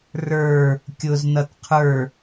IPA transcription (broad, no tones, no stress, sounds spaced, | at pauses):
r ə˞ | kʲ ʊ z n ʌ t qʰ ə˞